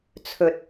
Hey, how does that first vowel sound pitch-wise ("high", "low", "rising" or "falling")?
low